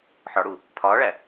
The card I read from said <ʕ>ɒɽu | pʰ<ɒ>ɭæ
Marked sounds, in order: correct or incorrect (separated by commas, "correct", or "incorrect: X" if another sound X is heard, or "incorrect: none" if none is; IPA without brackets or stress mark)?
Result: incorrect: ħ, incorrect: ɒː